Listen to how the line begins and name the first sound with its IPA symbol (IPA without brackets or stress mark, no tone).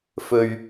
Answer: f